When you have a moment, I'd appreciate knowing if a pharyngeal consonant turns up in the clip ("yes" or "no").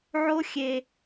yes